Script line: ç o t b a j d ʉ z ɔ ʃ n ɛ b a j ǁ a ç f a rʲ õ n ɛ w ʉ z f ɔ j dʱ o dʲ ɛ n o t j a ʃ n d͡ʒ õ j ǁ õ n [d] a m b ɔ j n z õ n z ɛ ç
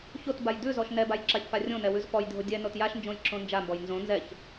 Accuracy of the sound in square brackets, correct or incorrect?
incorrect